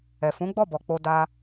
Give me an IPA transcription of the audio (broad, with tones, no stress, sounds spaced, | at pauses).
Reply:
ɛ˨ f ũ˨˦ ɡ͡b ɔ˦˨ b ɔ˨ k͡p o˧ d a˧